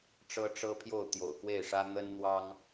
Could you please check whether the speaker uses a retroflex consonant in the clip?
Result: yes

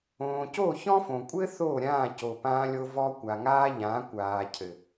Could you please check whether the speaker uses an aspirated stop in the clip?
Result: yes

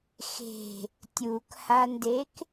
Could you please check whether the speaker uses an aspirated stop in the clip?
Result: no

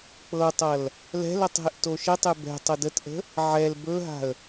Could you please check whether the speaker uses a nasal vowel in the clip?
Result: no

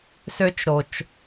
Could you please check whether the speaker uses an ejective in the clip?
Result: no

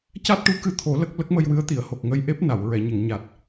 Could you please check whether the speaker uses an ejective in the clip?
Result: no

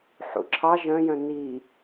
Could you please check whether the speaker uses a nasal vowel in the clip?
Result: yes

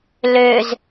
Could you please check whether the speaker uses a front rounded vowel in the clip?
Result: yes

